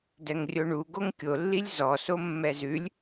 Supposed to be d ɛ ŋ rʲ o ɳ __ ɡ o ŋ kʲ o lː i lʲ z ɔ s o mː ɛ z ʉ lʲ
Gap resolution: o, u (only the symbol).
u